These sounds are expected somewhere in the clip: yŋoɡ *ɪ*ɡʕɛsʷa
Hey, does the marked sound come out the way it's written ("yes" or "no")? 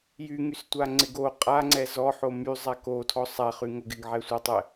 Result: yes